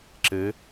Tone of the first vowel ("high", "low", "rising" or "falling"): rising